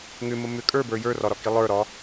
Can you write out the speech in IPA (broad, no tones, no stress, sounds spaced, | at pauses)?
ŋ ʏ m ə m ʏ kʼ ə˞ b ə˞ j ə˞ r ɒ ɾ ɒ k i lˠ ə˞ ɾ ɒ